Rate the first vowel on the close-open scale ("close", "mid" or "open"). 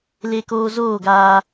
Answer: mid